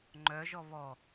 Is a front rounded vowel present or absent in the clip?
present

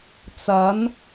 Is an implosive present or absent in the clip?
absent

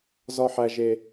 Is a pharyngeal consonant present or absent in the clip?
present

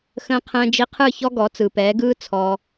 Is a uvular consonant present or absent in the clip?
present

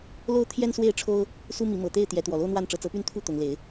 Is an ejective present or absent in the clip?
absent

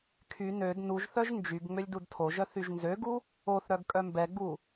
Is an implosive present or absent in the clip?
absent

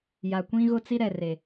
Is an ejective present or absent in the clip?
absent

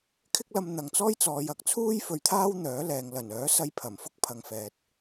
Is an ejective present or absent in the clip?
absent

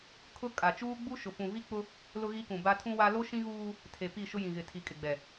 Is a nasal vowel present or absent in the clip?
present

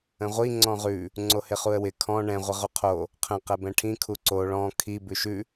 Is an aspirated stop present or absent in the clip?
present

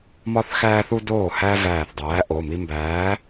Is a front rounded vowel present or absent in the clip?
absent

